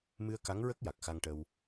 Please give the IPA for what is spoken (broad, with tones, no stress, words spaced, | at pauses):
mɨ˧ə̯ka˧˥ŋɹə˦˥k̚ ja˨˩k̚xa˧ŋʈə˧w